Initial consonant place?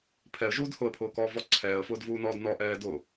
labial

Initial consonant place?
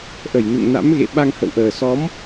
glottal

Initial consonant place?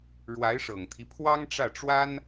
retroflex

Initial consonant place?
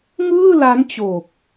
velar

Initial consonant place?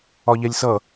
palatal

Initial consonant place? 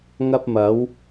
velar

